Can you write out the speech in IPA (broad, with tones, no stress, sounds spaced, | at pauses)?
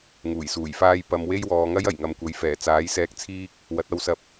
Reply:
ŋ uː˨˩ j s uː˨˩ j f aː˥ j p ɐ˨˧ m w e˥ j w ɔː˨˧ ŋ ɐ˥ j ɐ˨˩ j ŋ ɐ˨˧ m kʷ ɐ˨˥ j f ɛː˨˩ t͡s aː˨˥ j s ɛː˧ k̚ t͡sʰ iː˥ k̚ | w ɐ˨˥ t̚ ɐ˧ w s ɐ˧ p̚